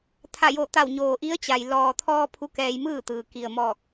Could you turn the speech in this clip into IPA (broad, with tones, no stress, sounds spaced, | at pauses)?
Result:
t̪ʰ a˧˩ j o˧˩ t̪ a˧˩ w ɲ oː˩ ʔ i˧˥ ə̯ t͡ɕ a˩ j l ɔː˩ t̪ʰ ɔː˧ pʰ u˧˥ k ɛː˧ j m ɯː˥˨ t̪ ɯː˩ k i˩ ə̯ m ɔː˧˩ k̚